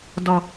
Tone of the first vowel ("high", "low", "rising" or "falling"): low